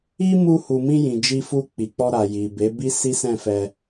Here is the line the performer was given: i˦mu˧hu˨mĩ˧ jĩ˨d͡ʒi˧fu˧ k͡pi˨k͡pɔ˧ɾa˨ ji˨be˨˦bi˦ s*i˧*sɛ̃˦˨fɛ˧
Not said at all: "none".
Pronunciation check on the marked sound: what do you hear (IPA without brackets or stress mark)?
i˦